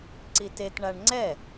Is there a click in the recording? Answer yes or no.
yes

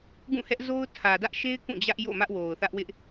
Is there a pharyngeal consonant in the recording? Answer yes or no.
no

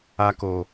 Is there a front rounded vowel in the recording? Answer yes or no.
no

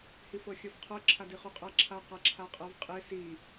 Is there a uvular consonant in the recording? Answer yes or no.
yes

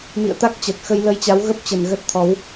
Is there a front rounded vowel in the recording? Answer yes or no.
no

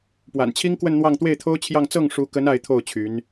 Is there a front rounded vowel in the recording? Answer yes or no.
yes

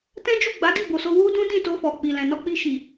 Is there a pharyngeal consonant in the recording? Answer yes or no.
no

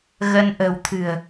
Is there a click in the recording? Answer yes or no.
no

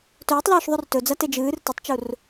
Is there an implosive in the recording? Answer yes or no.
no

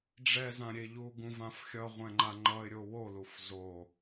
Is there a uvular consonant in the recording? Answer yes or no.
yes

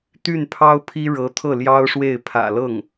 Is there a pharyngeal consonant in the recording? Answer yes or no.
no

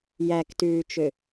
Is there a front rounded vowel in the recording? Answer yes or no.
yes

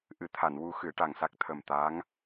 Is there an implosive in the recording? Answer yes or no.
no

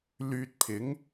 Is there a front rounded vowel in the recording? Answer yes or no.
yes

